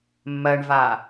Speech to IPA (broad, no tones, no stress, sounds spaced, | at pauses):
mː ɜ ɳ v a